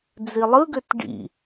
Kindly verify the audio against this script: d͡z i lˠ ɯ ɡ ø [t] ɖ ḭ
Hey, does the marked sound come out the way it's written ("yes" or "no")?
yes